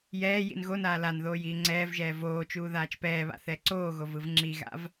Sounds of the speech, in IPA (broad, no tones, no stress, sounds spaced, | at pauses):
j ɛː j ḭ n ɣ o n aː l a n ð oː j iː ŋ͡ǀ ɛː v ʒ ɛː v oː t͡ʃ uː ð aː t͡ʃ p ɛː β a̰ θ ɛ ǀ oː ɣ o v ɯ v ŋ͡ǁ i ɣ a̰ v